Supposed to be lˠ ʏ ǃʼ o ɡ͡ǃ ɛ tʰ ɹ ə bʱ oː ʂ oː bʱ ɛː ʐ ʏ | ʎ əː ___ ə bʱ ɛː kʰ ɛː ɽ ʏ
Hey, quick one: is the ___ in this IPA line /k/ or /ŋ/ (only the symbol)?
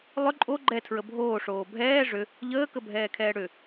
k